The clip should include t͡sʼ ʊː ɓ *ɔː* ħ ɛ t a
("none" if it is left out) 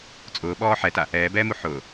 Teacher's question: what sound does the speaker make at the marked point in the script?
ɔː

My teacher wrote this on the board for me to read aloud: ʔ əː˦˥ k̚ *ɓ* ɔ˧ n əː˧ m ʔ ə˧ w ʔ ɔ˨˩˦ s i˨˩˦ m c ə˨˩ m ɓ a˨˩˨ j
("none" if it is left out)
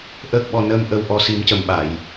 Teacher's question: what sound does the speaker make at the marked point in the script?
ɓ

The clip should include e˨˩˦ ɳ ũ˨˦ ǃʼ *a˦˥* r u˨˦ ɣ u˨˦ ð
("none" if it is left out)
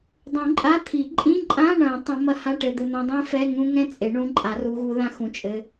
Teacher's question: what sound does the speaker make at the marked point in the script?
a˨˩˦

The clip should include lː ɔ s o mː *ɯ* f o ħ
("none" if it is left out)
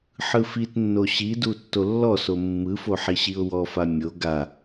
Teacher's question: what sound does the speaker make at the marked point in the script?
ɯ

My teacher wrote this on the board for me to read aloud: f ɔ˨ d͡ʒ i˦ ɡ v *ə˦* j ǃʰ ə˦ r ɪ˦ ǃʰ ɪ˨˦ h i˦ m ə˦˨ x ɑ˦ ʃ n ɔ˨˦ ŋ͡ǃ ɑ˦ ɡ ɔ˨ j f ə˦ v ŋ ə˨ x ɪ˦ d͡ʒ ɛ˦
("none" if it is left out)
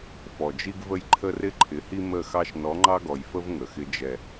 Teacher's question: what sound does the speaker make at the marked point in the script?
ə˦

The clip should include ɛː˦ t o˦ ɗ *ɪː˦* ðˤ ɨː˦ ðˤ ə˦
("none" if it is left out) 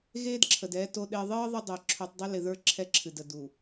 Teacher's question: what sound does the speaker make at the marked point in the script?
ɪː˦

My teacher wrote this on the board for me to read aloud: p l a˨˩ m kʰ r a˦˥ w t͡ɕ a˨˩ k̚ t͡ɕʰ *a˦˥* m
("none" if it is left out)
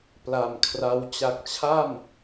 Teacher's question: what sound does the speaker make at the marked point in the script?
a˥˩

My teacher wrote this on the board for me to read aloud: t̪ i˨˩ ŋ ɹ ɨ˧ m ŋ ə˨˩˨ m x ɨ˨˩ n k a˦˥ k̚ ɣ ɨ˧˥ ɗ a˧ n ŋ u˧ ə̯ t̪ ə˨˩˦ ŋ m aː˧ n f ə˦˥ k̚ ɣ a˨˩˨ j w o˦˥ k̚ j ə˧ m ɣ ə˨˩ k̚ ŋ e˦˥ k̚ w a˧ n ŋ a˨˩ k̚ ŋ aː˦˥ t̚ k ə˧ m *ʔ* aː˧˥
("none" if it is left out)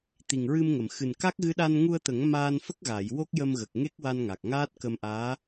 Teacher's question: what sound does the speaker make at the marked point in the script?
ʔ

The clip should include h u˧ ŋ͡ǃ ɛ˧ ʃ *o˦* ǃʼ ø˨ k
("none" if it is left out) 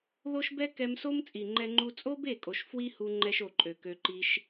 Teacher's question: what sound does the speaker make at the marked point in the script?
o˨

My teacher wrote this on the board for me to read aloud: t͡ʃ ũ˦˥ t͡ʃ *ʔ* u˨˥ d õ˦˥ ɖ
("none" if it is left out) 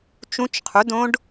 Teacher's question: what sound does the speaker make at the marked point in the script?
qʰ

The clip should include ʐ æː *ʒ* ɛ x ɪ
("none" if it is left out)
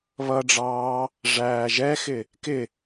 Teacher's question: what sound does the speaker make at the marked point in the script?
ʒ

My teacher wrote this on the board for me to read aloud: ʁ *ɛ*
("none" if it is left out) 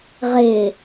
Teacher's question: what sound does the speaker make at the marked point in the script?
ɪ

